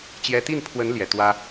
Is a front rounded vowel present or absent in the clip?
absent